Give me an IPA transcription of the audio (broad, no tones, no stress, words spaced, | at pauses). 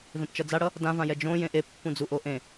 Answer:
vẽpt͡ʃʌd͡zaɽʌ | dãvãjɛ d͡ʒõ jẽʔe pːũd͡zuʔoʔẽ